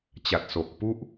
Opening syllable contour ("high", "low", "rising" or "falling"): low